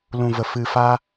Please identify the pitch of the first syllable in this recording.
low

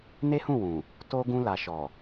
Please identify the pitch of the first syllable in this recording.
high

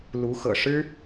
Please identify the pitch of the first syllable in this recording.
rising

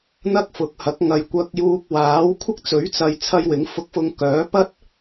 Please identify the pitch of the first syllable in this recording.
high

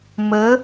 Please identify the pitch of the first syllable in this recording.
rising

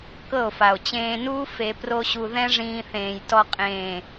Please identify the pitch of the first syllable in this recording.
falling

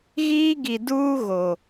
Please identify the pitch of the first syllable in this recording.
high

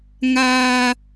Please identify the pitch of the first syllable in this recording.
high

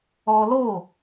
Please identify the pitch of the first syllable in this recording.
high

